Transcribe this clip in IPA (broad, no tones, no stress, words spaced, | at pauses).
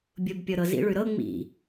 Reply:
bʲʊbpʲɤ ɾɤzḭɭʉ ɾɤ ŋ͡mḭ